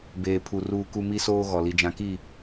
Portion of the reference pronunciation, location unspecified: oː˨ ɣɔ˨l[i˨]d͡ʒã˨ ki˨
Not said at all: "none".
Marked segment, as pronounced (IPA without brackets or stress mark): i˨